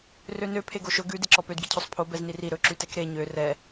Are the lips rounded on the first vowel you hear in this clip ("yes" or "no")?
yes